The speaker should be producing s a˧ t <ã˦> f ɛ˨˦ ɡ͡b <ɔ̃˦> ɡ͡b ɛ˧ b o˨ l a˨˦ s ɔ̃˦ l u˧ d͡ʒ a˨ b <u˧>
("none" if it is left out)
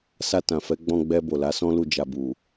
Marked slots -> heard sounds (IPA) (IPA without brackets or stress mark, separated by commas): ã˨, ɔ̃˧, u˨